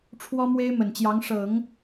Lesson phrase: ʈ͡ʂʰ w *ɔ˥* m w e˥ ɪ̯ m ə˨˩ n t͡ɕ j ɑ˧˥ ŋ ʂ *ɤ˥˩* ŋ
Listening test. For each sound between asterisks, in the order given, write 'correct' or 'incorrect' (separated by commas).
correct, incorrect